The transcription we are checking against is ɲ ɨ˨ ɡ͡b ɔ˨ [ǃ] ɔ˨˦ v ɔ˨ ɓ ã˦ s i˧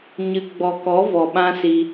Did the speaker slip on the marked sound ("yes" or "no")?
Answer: yes